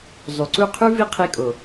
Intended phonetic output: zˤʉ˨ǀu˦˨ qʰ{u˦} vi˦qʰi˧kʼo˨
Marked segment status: incorrect: ʉ˦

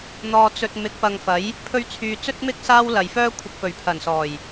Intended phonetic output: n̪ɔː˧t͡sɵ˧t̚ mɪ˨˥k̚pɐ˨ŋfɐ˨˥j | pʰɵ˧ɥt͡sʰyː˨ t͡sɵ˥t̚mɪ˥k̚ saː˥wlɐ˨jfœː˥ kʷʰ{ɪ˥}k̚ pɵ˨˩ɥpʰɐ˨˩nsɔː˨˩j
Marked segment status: incorrect: ɪ˨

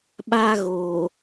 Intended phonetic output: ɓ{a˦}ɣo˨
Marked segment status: correct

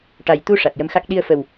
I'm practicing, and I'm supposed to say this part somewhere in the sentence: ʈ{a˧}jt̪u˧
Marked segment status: incorrect: a˨˩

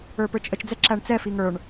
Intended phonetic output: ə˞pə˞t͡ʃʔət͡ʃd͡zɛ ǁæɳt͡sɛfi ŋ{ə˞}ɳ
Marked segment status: correct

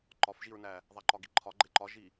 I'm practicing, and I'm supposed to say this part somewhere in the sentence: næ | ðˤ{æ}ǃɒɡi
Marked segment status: correct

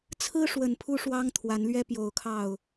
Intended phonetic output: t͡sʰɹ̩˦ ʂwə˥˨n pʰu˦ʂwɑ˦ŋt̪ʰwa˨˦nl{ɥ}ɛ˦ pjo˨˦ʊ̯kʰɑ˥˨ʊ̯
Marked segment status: correct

